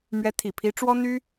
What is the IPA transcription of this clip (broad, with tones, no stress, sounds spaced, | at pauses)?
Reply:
m ɥ ɛ˧˥ t̪ʰ i˨˩ pʰ i˧˥ ʈ͡ʂ w ɔ˥ n̪ y˥